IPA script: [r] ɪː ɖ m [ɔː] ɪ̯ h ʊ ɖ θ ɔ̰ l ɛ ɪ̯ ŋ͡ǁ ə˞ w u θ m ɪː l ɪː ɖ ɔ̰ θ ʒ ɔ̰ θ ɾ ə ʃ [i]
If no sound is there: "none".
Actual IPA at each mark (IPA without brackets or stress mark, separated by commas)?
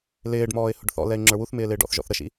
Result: l, ɔː, ḭ